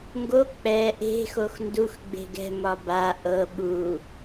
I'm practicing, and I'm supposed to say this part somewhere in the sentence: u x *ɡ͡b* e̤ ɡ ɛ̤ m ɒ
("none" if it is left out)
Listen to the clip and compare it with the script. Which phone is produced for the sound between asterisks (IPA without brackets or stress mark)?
ɡ͡b